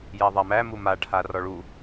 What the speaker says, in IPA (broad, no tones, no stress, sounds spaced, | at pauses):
j æ ðˤ a m æ m u m a ʈʰ a r ɔ ɭ u